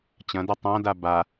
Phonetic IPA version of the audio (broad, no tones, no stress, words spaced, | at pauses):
t͡ɕɐ̃dɐ tˤãda ba